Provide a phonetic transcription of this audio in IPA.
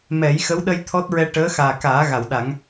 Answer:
m ɛ˨˩˦ j x ə˧˥ w ɗ ə˧ j t̪ʰ ɔ˦˥ t̚ ɹ ɛ˧ ʈ əː˧˥ x aː˨˩ k aː˨˩˦ ɣ a˨˩˨ w ɗ a˨˩˦ ŋ

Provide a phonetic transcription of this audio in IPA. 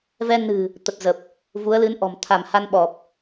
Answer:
v ɛ˧ n ɨ̤˨˩ | t̪ ə˨˩ t̚ z ə˨˩ p̚ | v u˨˦ ə̯ l ɨ˨˦ n ʔ ɔ̤˨˩ m t̪ʰ a˧˩ m h a˧ n ɓ ɔ˨˩ p̚

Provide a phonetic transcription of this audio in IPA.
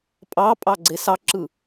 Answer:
pʼ ɑ pʼ ɑ ɡ͡ǀ e s ɑ ǁ ɯ

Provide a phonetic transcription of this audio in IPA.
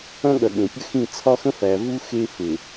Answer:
ɐ̃˦ ɠ ɐ˨ ɠ ẽ˨ pʲ ə˦ x ĩ˦˨ t͡sʰ ɒ˦ x ə̃˦ f æ˨ v u˦ x e˦ f e˨

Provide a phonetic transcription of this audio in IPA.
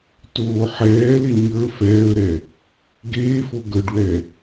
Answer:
t oː ħ ɛː l e ɲ ə˞ f ɛː ə̯ ɾ ɛ | ɡ eː f o ɡ ə˞ ɖ w ɛ

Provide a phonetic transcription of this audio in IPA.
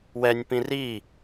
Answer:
w ɛ nʲ p ĩ r i

